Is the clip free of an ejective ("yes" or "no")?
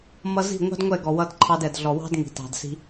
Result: yes